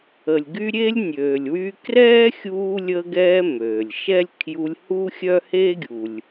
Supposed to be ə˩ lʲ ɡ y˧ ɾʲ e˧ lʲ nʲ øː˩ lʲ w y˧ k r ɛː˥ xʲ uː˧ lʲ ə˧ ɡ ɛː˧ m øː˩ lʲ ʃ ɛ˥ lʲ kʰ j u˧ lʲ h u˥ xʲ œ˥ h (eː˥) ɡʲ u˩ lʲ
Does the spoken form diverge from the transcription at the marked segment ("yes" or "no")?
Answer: no